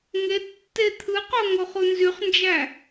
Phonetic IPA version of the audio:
ŋ e tː e t̪ʰ ɯ q o ŋ o χ u n z y χ n d͡ʒ æ

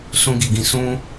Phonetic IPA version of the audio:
s ũ˧ ɡ i˨ ɡ ĩ˧ s ũ˦

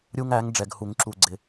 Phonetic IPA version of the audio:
ɾʲ u˦ ŋ æ˨˥ ŋ ɖ͡ʐ ɛ˨ ɡ h u˨˩˦ ŋ ǁ u˨ ɡ͡ǀ ɪ˨

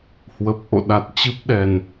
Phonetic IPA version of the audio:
h w ə˨˩ p̚ ʔ o̰˧˨ ɗ a˨˩ t̚ t͡ɕ ɨ˦˥ p̚ ɗ ɛ˨˩ n

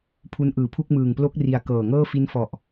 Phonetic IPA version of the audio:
pʰ u˦˥ n ʔ ɯː˨˩ pʰ u˥˩ k̚ m ɯː˨˩ ŋ p l o˦˥ k̚ r i˨˩ a̯ k ɤː˨˩ ŋ ɤː˥˩ f i˦˥ n f ɔ˨˩ ʔ

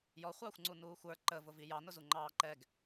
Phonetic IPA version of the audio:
j ɔ χʷ ɑː xʷ ŋ͡ǀ u n uː xʷ ə˞ ǃ ə v ʊ v i j ɑ n ʊ z u ŋ͡ǃ ɑː ǃ ɛ ɡ

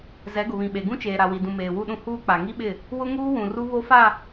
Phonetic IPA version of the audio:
z ɛ˨˦ ɡ ʊ˨ β ĩ˨ ɓ e˨ ɡ ũ˦ t͡ʃ eː˨ ɾ a˨ w i˨ d ũ˨ m eː˨ w u˦˨ ɗ ũ˦ h uː˦ k͡p a˨ ŋ i˦ ɓ ɪ˦˨ | w ʊ˦ ŋ uː˦ w ũ˨ r u˦ β o˦ f a˦˨

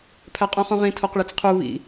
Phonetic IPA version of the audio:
pʰ æ qʼ ũ χ ũ ʁ ĩ tʰ o q ɭ e t͡s qʰ u β ḭ

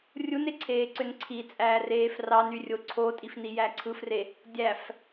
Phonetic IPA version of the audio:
rʲ u n e ǀʰ eː ǀ ø n ǀʰ i t͡sʼ æː r eː f r ɑ n y rʲ o ǀʰ o tʼ i f n i j æ ǀʰ ɯ f r e | dʲ æ f

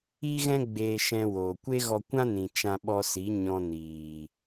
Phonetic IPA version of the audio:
i˧ ɣ ɛ̃˧ ɡ͡b eː˧ ʃ ɛ̃˧ w oː˨ kʷ e˦ ɣ ɔ˧ kʷ ã˦ n ĩ˨ t͡ʃ ã˧ ɓ ɔ˧ s i˨˦ ɲ ɔ̃˧ n iː˨

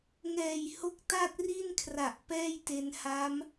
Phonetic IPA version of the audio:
ŋ ɛː˨˩ j h o˦˥ k̚ t a˥˩ t̚ r i˥˩ n kʰ r a˨˩ ʔ p ɛː˥˩ j t e˧ n h a˦˥ m

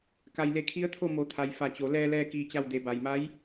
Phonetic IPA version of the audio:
k a˩ j l e˩˧ kʰ i˧˥ ə̯ t̪ʰ o˥˨ m o˩˧ t̪ʰ a˩ j f a˧˩ t͡ɕ o˩˧ l ɛː˧ l ɛː˧ k iː˧ t͡ɕ a˥˨ w d e˩˧ b a˩ j m a˧˥ j

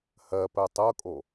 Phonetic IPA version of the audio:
h ɜ p ɜ tˤ ɤ kʼ o

